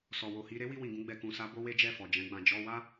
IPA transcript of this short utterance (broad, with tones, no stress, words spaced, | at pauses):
sɔ˨wo˨hi˧ ɾe˦wi˧wĩ˨ɡũ˧ ɡ͡bɛ˨kũ˨sa˨˦ bo˦we˦d͡ʒɛ˦˨fɔ˨ d͡ʒɛ̃˨˦ɡ͡bã˧ d͡ʒɔ˧wa˦